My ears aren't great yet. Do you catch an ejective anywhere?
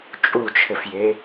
yes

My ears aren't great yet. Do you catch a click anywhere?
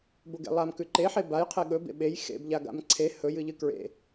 yes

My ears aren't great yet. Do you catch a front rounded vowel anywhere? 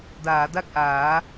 no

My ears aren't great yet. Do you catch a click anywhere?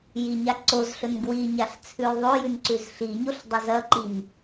yes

